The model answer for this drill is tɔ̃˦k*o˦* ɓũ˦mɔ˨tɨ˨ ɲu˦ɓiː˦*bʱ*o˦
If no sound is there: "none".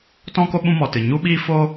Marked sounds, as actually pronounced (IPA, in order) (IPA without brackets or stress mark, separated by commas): o˦, f